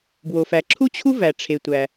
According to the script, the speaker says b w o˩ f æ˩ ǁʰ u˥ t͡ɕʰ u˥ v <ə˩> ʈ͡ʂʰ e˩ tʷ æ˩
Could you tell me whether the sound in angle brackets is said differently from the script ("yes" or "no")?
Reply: yes